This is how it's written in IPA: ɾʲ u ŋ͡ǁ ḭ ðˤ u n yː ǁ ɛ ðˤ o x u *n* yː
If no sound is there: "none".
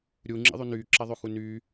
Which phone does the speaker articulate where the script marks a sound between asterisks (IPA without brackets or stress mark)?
n